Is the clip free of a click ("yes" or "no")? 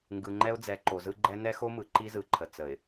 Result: no